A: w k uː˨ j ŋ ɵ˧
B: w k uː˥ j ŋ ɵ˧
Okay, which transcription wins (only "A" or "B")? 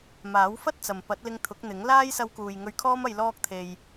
A